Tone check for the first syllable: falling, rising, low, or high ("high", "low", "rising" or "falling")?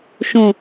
low